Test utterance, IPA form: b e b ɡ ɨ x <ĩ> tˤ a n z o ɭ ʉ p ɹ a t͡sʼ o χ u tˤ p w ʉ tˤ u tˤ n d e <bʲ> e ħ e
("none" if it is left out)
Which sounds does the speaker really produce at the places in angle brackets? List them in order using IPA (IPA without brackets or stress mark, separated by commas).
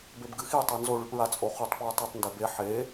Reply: i, b